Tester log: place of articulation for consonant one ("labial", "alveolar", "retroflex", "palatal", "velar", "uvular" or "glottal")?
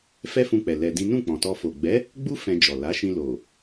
labial